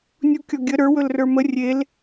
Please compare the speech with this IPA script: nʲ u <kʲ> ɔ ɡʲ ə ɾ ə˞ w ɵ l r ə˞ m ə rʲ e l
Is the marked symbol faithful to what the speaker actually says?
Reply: yes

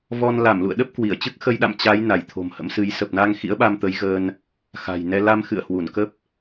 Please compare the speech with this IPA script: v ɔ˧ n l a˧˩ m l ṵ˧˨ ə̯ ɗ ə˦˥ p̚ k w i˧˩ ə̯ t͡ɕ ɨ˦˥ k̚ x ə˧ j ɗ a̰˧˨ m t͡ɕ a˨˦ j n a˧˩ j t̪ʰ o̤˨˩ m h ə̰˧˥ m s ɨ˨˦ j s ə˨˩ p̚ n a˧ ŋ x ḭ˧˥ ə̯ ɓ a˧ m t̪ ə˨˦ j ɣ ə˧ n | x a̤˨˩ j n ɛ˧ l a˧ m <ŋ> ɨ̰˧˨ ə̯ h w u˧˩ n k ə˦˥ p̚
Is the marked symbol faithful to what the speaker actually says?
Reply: no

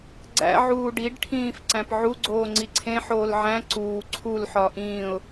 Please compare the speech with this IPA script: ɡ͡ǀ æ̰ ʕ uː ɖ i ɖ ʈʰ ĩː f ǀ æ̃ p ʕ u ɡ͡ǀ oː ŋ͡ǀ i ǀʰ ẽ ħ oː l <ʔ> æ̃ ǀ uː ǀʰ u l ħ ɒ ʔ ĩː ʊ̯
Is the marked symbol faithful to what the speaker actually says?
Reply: no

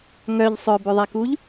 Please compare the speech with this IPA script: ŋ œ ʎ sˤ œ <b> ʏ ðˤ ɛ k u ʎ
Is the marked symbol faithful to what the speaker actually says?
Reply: yes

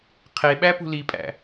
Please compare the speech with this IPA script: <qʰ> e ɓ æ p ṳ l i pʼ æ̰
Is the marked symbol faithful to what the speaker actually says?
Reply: yes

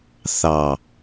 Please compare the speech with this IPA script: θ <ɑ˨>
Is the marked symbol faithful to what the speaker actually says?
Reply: yes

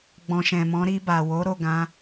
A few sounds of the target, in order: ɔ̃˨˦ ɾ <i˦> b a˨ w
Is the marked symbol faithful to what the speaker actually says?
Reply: no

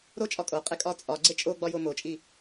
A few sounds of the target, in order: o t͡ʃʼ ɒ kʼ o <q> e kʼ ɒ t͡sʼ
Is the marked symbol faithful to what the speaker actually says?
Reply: no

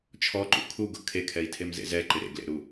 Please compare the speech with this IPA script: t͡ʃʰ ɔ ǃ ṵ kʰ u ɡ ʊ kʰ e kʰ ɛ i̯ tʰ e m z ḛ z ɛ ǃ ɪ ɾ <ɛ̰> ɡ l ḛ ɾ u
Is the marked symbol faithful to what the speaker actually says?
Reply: no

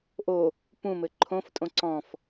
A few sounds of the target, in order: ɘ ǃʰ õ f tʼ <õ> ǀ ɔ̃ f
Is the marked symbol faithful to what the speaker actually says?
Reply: yes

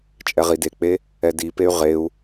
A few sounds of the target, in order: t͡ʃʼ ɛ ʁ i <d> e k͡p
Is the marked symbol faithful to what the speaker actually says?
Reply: yes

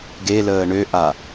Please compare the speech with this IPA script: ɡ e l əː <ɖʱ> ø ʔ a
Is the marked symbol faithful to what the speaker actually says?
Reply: no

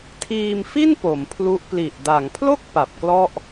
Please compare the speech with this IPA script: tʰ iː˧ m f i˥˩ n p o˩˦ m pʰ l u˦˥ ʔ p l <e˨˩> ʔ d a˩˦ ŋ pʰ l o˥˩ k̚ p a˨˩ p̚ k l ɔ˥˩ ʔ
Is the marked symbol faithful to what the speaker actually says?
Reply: no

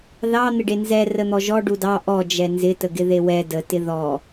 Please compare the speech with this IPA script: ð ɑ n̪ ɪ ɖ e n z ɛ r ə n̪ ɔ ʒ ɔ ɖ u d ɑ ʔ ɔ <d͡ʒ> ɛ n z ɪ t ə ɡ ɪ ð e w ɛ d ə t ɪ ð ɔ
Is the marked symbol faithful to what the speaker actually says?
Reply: yes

